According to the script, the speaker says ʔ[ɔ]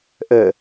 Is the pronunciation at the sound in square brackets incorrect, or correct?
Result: incorrect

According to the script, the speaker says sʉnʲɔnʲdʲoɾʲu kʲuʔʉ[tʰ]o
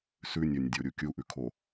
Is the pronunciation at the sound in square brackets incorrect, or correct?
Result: incorrect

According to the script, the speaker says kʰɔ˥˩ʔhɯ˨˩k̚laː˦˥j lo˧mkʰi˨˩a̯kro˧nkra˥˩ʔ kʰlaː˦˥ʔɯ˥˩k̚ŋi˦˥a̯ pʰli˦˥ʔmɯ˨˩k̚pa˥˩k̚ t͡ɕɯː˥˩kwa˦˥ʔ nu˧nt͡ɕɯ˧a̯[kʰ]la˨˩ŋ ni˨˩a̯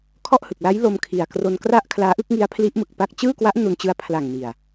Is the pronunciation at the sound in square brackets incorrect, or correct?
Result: incorrect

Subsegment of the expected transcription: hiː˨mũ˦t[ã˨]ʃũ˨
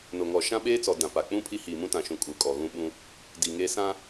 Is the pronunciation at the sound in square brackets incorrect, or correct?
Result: correct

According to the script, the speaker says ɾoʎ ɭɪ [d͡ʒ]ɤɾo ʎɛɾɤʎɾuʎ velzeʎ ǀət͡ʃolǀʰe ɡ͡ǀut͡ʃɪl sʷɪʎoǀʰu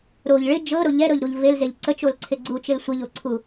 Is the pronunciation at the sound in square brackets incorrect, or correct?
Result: correct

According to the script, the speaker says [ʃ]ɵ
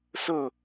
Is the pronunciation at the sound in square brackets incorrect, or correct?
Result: incorrect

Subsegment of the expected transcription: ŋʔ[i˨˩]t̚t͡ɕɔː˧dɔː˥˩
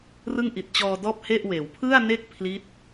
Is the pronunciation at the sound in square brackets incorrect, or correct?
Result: correct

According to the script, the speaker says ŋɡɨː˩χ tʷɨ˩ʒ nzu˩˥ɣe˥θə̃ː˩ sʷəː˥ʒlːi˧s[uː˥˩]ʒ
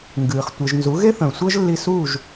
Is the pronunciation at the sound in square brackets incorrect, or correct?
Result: incorrect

